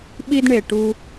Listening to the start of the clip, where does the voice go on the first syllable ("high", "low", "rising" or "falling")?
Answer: high